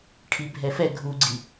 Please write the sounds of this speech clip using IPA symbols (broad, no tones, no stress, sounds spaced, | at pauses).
ʈʰ i bʱ ɛ f ɛ ɡʱ u ɡ͡ǀ i